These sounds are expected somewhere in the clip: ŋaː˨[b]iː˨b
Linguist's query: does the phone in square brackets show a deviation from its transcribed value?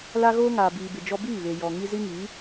no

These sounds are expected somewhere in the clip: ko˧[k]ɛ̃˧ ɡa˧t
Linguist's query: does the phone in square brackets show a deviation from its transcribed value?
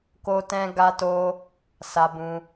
yes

